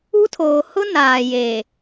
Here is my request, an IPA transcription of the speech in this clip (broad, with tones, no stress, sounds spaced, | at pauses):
u˦ tʰ oː˨ h ʊ˦ n aː˨ j e˨